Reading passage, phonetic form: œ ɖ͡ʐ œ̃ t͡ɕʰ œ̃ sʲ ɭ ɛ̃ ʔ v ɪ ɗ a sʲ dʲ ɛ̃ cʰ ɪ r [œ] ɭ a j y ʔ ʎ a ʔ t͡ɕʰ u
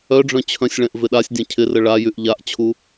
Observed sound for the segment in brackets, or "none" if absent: ə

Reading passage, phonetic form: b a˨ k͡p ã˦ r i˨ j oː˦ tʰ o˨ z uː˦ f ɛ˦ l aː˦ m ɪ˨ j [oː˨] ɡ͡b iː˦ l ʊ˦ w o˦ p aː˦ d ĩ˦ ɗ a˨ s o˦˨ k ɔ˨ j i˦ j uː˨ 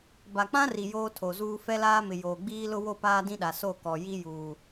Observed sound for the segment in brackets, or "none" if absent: oː˨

